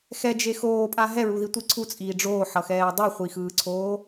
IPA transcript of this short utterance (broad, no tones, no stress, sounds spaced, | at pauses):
x ɛ d͡ʒ e x oː pʼ a ɦ ɛ ɹ u ð i tʷ i ǀʰ u t͡sʼ iː ɖ͡ʐ oː ħ ʌ x ɛː dˤ ɯ χʷ i x ɯː ǀʰ oː